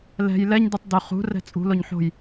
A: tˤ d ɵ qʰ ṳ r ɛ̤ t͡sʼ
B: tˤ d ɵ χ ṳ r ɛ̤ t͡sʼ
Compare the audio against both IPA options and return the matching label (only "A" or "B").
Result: B